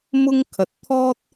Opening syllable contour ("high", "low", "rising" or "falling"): high